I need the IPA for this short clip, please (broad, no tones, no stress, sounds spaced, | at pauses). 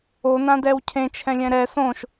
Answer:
o n ã d ɛ w cʰ ẽ t͡ʃʰ ɛ̃ lʲ ɛ̃ ɾ ɛ s õ ʃ